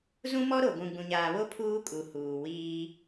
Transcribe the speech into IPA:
z ũ˦ m ɔ˦ ɾ o˨ ɡʷ ũ˨ ɡ͡b ũ˨ ɲ aː˨ β o˦ pʰ uː˦ kʼ u˨ h uː˨ w iː˦

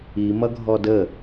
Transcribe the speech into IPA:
i m ʌ ɡʱ ɔ d ə

